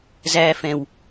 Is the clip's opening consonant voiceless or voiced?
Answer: voiced